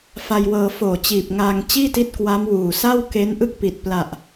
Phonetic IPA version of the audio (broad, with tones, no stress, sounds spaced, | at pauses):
f a˧ j w ɤː˧ f oː˨˩ t͡ɕ iː˨˩ p̚ ŋ aː˧ ŋ t͡ɕ iː˥˩ t i˦˥ t̚ k w a˦˥ m w uː˨˩ s a˥˩ w k e˦˥ n ʔ ɯ˥˩ k̚ p i˨˩ t̚ p l a˨˩ ʔ